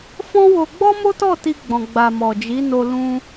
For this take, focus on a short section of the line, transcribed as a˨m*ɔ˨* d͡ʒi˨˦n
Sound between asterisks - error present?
no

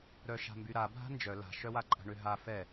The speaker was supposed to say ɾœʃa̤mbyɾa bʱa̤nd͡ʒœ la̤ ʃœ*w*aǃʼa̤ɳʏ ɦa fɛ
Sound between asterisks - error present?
no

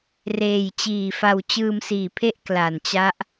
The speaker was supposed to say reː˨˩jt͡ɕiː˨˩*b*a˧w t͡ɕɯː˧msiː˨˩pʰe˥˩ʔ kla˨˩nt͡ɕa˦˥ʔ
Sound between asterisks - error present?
yes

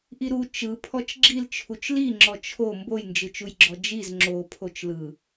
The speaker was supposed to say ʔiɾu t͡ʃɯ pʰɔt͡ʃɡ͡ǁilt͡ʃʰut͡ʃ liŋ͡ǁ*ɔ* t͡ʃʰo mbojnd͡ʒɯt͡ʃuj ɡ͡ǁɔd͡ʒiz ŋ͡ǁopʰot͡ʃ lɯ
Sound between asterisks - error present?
no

